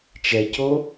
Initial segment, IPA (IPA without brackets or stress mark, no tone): t͡ʃ